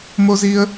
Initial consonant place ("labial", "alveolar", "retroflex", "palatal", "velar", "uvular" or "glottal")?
labial